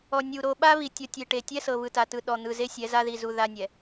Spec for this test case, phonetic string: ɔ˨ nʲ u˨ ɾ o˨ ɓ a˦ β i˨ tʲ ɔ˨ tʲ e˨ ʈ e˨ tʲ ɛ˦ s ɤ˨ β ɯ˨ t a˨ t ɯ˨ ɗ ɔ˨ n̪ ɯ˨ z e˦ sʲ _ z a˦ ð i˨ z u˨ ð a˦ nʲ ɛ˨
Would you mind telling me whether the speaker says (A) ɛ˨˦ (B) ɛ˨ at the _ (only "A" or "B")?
A